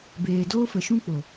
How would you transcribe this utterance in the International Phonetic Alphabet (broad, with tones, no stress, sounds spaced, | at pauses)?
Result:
b eː˨ d oː˧ f ə˨ ʃ ũ˧ k͡p o˨